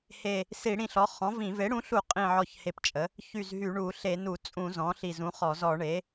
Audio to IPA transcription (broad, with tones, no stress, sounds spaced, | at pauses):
h e˧˩ | s i˧˩˧ ɽ ĩ˧˩ ɬ ɔ˩˥ χ ɔ̃˩˥ v ĩ˧˩˧ v e˩˥ ɽ ũ˩˥ ɬ u˧˩˧ qʼ ĩ˧˩ ʕ ɔ˧˩ ç h e˧˩ p t͡ʃʼ ə˩˥ | ç y˧˩ z ɦ y˧˩˧ ɳ u˧˩˧ ɬ e˧˩˧ n u˧˩˧ t͡sʼ ũ˧˩˧ z ɔ̃˩˥ ɬ i˧˩ z ũ˩˥ χ ɔ˧˩˧ z ɔ˧˩˧ ɳ e˩˥